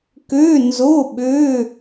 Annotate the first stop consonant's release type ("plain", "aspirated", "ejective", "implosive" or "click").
plain